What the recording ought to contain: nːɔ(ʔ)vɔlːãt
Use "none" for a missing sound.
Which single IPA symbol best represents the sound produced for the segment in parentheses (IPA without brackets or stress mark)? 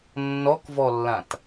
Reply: k